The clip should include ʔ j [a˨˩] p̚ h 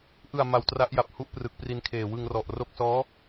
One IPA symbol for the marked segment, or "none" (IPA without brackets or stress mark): a˨˩